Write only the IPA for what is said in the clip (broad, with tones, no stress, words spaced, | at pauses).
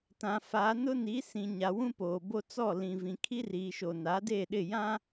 tã˨fa˨˦ nʊ˦ni˨˦sĩ˨ ɲa˨wũ˦poː˨bo˦ t͡sɔ˦˨lĩ˨vĩ˨ kʰi˦riː˨ʃo˨ na˨˦de˦˨ɗɪ˦˨jã˦